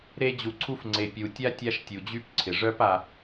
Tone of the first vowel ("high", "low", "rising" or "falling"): high